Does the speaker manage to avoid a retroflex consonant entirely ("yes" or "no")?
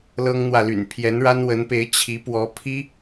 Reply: no